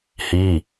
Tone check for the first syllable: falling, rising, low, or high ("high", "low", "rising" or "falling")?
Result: falling